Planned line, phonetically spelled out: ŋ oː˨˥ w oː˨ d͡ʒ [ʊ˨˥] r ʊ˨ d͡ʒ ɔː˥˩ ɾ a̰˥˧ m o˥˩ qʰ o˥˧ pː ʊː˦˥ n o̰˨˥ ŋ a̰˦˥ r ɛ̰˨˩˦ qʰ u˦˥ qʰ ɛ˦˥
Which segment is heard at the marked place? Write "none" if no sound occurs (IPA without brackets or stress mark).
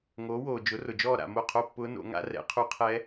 ʊ˨˥